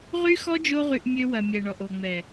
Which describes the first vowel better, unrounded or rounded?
rounded